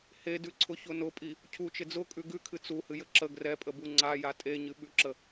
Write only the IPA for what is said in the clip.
hedʉǀʰʊçʊ nʊpʼi | cʰut͡ʃɪ d͡zʊkʼʉ ɡʉkʰɨ t͡suhɨjə ǁə ɡrɛpʼəbu ŋ͡ǀaja tʼeɲɨɓʉǁə

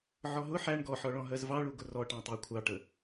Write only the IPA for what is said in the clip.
ʕɔɦʊ ħæɳ ɡɔħɔɭɔ̃ ɦɜzvɑɭuɡʊ rɔʈɑ̃tˤɜ kʷʰɑʈə

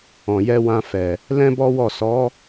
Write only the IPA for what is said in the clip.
ɔ̃˨jɛ˧wã˧ fɛ˨ | lɛ̃˦bɔ˦wɔ˦˨ sɔ˨˦

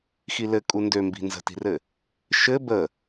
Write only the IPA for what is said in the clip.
xilɘ kʼundømbi̤ nzə̤ti̤rɘ | ʃɘ bə

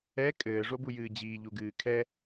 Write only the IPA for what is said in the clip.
ɛ kʼɘːʐobujɨː d͡ʑiːʎuɡɨː kʰɛ

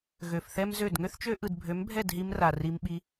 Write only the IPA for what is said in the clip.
ɣø˨fθɛ˦mzø˦˨d ŋø˦θt͡ʃø˦ ʔɯ˨dbʱø˨˦mbʱɛ˦˨dɦi˧m ra˨ ri˧mɓi˧

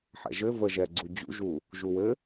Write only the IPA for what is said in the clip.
ħɛ̰ʒɘ və ʒɛɡ͡ǀu d͡ʑṵʒu | ʒuwɘ

